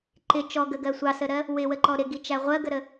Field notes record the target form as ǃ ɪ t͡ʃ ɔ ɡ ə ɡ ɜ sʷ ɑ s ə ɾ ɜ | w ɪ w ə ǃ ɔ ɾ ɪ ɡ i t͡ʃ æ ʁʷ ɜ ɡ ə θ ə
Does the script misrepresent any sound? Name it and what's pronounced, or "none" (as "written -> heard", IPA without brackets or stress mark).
θ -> ɾ